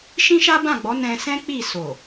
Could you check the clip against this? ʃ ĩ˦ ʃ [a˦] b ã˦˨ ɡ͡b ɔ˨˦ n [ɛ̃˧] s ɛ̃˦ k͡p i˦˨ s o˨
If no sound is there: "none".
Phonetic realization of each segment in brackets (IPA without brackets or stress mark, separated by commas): a˦, ɛ̃˧